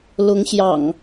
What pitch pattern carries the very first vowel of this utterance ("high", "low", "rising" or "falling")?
rising